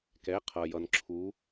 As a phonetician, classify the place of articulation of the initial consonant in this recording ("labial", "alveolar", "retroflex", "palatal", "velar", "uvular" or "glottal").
velar